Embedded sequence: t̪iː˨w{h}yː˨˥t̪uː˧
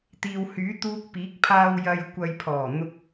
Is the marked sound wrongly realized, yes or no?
no